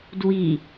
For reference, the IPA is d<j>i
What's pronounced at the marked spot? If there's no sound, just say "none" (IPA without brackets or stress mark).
w